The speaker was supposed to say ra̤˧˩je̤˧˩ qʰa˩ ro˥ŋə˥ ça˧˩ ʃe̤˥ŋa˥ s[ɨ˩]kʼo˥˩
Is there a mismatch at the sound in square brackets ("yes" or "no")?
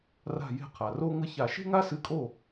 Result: yes